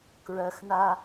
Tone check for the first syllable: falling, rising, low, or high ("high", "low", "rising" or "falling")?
high